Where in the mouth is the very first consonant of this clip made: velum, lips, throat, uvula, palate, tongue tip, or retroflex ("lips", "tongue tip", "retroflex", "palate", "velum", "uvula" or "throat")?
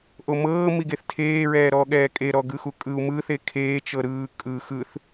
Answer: throat